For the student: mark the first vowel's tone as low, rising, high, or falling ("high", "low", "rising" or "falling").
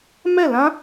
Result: falling